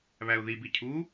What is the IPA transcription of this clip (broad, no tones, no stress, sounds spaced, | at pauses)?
β æ ʊ̯ ð i b i cʰ u